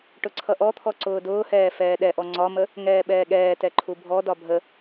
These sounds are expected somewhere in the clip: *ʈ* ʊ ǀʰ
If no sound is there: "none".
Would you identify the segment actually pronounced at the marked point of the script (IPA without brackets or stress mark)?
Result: ʈ